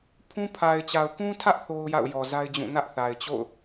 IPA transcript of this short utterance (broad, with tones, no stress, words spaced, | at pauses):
pʰũ˦ pʰa˨ɪ̯t͡ɕa˨ʊ̯kũ˦tʰä˦ʔ θo˦ʊ̯ja̰˦˨ʊ̯ jɔ˨ za˦ɪ̯d͡ʑũ˦˨ nä˦ʔθa˨ɪ̯t͡ɕo̰˦˨ʊ̯